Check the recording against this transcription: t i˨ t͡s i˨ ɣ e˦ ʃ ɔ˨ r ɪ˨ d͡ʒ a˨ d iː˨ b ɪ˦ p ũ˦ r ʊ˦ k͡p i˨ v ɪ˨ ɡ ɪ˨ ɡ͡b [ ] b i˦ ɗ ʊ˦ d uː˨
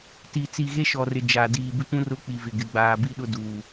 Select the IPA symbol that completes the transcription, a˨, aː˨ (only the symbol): aː˨